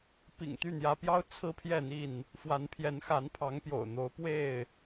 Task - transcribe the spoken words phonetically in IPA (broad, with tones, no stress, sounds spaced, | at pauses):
p ḭ˨˩ ŋ t̪ y˥˨ n̪ j ä˨˦ p j ɑ˦ ʊ̯ t͡sʰ ɹ̩˦ pʰ j ɛ˥˨ n̪ i˥˨ n | f w a˨˦ n pʰ j ɛ˨˦ n x a˨˦ n pʰ ɑ˨˦ ŋ p j o̰˨˩ ʊ̯ n̪ o˨˦ ʊ̯ p w e˥˨ ɪ̯